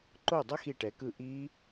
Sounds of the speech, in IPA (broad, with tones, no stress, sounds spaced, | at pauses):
ǃ o˥˩ dˤ ʌ˦˥ x i˥˩ ʈ ɛ˨˥ k ɯ˥˩ ʔ i˦˥